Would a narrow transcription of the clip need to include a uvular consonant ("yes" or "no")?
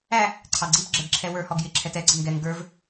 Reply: no